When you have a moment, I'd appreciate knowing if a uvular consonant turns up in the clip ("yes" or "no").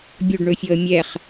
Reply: yes